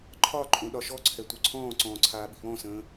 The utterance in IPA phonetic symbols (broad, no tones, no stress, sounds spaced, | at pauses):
ǃʰ ɒ ǃʼ õ ɗ ɒ ʃ ɔ ǀʰ ɛ tʷ œ ǀʰ ɔ̃ː ǀ ɔ̃ː ǀʰ aː ɓ i̤ β ɔ̃ s ə̃ː